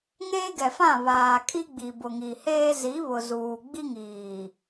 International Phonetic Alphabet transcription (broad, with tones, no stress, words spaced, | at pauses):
ŋeː˦ɡɛ˨fã˦˨ βaː˨kʼi˦ ɡ͡bi˨bʊ˨ŋi˨heː˦ zi˨˦βʊ˨ zuː˨ɡ͡bi˦ŋiː˨